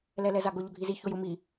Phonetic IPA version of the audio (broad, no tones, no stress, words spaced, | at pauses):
lɛlɛzaɡʊ ʎʊɡʱizi çojʊ mi